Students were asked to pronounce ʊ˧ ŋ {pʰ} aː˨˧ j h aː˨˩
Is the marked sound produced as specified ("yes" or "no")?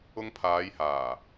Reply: yes